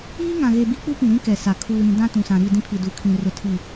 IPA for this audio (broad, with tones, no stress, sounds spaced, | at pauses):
iː˦ ŋ ã˨ ɣ e˨ b i˦ k͡p u˦ p ĩ˨ ɾ ĩ˦ k ɛ˨ s a˨ kʰ uː˨ ɾ ĩ˨ d ã˦ t ũ˨ s ã˨ ɾ i˦˨ d ĩ˦ pʰ i˨ d u˨ kʰ ĩ˨ r ʊ˨ tʰ i˨